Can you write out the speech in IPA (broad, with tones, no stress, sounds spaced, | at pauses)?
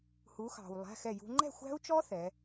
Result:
h u˨˦ x ɑ̤˨ w lˠ æ̤˧˥˧ x ɛ˥˨ j ṳ˦˥ ŋ͡ǃ ɛ̤˥˨ xʷ æ̤˦˥ u̯ t͡ʃ ɔ˦˥ θ ɛ˨˦